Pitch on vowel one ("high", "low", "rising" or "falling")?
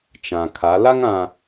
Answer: low